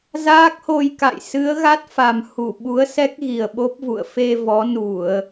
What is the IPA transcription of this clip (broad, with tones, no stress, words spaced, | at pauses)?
zaː˦˥k̚ho˧jka̰˧˨j sɨ˨˦ə̯ ɣa˦˥t̚fa˨˩m hu˧˩ ɓu˨˦ə̯sɛ˦˥k̚ɣi˨˩ə̯ ɓo˦˥p̚vṵ˧˨ə̯ fe˧ vɔ˨˦nu˧˩˨ə̯